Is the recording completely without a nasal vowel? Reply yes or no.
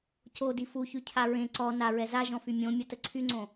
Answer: no